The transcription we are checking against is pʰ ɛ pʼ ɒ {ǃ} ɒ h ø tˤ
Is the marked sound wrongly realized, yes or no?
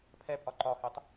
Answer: no